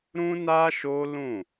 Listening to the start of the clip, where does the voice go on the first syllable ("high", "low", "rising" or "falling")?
high